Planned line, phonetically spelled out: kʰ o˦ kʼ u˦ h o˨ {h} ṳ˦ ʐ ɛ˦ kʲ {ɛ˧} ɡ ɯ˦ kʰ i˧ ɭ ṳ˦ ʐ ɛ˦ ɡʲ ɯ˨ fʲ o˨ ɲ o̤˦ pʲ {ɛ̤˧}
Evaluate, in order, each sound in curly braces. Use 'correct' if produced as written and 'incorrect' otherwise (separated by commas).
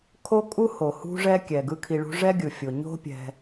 correct, incorrect, correct